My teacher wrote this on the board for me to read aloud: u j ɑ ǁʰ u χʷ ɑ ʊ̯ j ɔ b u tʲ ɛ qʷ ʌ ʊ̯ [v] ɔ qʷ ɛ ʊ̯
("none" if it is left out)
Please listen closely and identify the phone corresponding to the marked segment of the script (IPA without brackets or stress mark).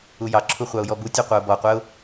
b